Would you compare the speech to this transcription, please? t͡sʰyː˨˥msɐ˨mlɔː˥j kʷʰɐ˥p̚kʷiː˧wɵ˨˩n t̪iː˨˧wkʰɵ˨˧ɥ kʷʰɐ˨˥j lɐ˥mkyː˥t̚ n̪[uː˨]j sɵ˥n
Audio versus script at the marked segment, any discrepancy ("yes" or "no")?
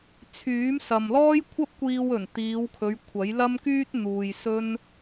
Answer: no